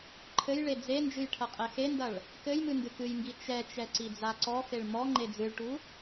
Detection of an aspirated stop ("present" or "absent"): present